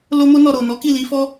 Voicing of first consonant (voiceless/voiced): voiced